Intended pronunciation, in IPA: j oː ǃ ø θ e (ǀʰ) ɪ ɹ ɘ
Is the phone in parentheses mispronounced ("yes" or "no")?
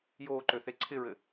no